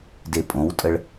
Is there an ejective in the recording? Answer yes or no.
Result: yes